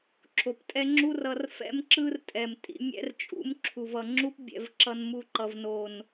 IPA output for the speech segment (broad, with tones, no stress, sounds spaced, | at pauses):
ǁʰ o˨ p tʼ ɛ˦ ŋ͡ǁ u˦ r ʌ˧ r f ɛ̰˦ m ǁ ɯ˦ r tʼ ɛ˨ m tʼ ḭ˧ mʲ ɛ̰˦ r t͡ʃʼ ṵ˨˦ m ǁʰ u˨ v ʌ˨ ŋ͡ǁ u˦ p bʲ ɛ̰˧ v ǁ ʌ˧ n m u˧ ǃ ʌ˨ v n o˨ n